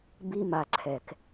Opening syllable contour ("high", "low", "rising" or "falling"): high